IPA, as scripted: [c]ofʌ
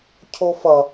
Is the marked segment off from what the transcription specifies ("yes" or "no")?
yes